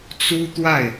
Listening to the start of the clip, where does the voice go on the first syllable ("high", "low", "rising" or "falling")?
high